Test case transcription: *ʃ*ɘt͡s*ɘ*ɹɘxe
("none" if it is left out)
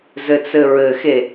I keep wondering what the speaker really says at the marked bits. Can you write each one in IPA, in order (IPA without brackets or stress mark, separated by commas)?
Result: z, ɘ